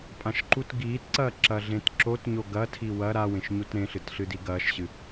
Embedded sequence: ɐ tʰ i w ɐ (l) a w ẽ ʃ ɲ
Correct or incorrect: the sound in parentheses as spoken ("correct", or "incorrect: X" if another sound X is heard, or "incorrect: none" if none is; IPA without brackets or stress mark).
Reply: incorrect: ɾ